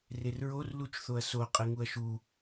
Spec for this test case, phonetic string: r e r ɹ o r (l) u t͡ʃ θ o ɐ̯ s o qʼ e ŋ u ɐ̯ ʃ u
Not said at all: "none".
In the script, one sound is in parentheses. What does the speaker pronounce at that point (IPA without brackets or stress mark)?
l